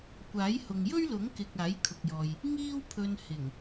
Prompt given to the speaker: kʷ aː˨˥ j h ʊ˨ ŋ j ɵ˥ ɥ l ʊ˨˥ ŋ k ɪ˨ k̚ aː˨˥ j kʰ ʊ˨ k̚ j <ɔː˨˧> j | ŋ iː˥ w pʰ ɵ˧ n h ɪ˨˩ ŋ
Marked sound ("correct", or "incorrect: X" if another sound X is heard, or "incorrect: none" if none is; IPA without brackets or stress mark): incorrect: ɔː˨